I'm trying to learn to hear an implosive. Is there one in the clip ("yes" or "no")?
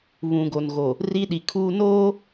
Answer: yes